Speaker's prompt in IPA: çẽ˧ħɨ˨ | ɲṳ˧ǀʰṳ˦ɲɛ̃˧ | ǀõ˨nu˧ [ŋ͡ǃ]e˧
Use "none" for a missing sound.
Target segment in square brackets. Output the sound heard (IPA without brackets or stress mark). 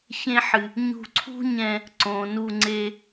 ŋ͡ǀ